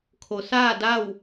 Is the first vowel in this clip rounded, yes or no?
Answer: yes